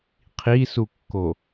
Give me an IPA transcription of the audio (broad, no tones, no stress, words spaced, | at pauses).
qʰisukːo